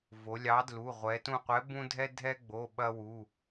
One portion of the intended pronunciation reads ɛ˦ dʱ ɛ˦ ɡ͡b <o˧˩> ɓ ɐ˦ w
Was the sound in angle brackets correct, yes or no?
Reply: no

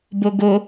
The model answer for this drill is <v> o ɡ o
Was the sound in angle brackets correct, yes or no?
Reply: no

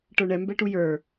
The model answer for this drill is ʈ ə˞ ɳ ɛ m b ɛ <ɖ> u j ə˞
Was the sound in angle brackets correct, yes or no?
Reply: no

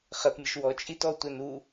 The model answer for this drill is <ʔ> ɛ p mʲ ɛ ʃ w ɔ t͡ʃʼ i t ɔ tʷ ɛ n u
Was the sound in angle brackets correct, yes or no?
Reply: no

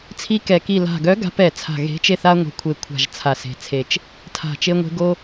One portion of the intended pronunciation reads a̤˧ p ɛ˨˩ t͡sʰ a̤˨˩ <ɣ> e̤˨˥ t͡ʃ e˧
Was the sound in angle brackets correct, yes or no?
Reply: yes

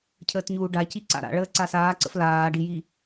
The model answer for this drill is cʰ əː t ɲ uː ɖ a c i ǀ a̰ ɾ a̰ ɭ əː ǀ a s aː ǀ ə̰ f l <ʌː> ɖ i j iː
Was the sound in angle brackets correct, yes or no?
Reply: no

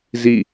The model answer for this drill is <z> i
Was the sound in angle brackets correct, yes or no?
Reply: yes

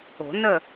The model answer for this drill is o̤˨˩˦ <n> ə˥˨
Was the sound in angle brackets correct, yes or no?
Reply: yes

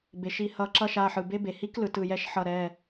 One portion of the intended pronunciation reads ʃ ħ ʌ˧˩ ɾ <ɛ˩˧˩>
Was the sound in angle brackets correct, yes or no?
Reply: yes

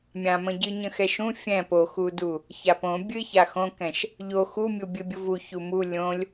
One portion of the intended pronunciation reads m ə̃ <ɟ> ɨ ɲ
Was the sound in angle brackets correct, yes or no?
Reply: yes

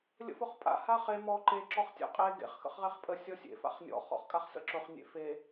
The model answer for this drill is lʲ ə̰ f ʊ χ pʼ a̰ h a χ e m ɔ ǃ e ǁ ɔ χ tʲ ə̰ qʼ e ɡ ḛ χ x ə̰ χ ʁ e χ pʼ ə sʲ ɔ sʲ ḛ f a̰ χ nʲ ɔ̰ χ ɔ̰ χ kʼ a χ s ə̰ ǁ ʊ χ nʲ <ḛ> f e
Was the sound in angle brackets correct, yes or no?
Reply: yes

